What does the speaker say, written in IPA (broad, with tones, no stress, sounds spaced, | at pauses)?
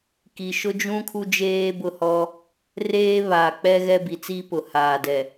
k i˨ ʃ ʊ˦ d͡ʒ ũ˦ kʰ u˦ d͡ʒ eː˦ b ʊ˦˨ h ɔ˦ | r eː˦ β a˨ k͡p ɛ˦ ɣ ɛ˦ b i˨ t͡s i˦ p ʊ˨ h aː˨ d ɛ˨